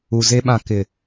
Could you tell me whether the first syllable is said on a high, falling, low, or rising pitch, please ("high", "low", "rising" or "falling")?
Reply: low